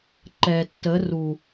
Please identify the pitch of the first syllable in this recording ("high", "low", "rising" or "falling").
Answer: low